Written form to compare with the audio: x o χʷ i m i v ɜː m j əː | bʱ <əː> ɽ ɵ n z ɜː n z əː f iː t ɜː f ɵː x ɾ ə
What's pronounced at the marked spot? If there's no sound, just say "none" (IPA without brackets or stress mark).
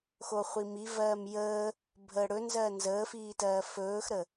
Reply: əː